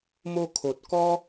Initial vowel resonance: oral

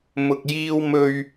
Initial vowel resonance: oral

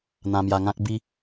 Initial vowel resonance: nasal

